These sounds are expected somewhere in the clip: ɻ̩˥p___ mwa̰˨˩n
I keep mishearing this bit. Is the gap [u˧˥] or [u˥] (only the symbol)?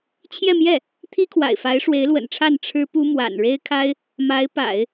u˥